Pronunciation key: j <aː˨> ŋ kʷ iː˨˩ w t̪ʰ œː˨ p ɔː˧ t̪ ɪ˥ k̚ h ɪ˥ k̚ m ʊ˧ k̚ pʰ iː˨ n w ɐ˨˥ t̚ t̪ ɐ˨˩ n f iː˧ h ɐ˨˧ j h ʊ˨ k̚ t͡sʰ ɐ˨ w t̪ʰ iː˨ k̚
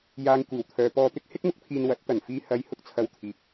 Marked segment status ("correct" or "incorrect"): correct